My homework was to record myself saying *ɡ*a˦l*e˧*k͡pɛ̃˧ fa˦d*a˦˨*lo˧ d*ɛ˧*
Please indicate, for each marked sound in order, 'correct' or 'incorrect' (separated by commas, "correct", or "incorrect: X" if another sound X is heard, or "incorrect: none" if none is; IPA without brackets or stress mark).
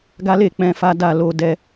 correct, incorrect: e˦˨, correct, correct